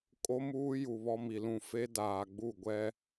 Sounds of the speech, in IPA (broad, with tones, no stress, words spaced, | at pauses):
kʼo˦muː˦ju˨ βɔ˦mi˨lũ˦˨ fe˦ daː˨ɡ͡bu˦˨ɡʷɛ˦